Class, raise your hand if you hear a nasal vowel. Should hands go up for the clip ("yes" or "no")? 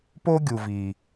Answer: no